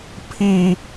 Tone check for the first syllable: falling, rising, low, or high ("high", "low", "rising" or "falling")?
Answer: high